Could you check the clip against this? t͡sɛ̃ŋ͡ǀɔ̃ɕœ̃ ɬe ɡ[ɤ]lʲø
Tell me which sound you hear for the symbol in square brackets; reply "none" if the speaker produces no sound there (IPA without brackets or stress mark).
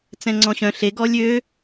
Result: ɔ